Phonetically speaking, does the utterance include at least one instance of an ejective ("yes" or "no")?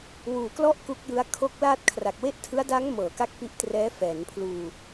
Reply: no